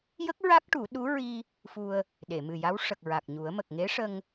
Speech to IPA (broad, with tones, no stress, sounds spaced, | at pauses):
j ə˦˥ k̚ ɹ a˦˥ k̚ ʈ u˨˩˦ ɗ u˧˥ ɹ i˧ | f u˧ ə̯ | ɗ e˨˩˨ m ɨ˨˩ j a˧˥ w ʂ ə˨˩ k̚ ɹ a˨˩ k̚ ɲ u˨˩˦ ə̯ m ə˨˩ k̚ ŋ e˧˥ ʂ ə˧ ŋ